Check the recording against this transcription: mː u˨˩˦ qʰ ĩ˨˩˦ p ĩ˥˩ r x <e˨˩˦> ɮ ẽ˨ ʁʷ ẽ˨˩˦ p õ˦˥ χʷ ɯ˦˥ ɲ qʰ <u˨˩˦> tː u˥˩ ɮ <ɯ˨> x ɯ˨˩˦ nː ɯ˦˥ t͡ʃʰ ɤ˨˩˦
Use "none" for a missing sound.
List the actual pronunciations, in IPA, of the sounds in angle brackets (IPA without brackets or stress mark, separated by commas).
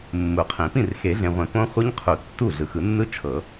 e˨˩˦, u˨˩˦, ɯ˨